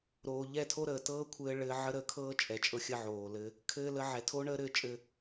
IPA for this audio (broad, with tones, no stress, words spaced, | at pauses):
ɾoː˨ʎɛ˦˨tʰo˦ɾəː˨ tɤː˦kʷʰɘː˧ ɭɘː˧ʕə˦ ɾəː˧kʰɤː˦t͡ʃʼɛ˨t͡ʃʼɤ˧ xʲə˦ʕoː˨lɘ˦ | kʰɘː˦ lə˧ʕɛ˨tʰo˦ɳəː˦ ɾɘː˧t͡ʃʼɘ˧